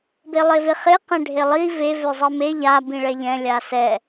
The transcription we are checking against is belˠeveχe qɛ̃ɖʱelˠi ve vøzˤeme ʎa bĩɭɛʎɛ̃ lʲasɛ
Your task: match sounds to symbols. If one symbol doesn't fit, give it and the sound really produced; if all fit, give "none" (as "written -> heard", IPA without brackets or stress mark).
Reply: none